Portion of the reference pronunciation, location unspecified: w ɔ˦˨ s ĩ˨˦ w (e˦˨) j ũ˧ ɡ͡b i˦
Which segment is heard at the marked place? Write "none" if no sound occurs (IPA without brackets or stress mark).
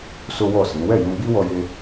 ɛ˦˨